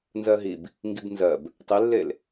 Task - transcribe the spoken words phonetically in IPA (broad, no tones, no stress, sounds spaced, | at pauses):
n z ɜ ɦ i b | ŋ ɡ i b n z ɜ b | tˤ i lː e l